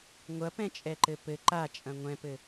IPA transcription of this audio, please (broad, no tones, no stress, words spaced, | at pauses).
ŋʷɐpɛ̃t͡ʃʼɛǃɘ pɘ ǃat͡ʃʼɐ̃ ŋʷɛ̃pɘ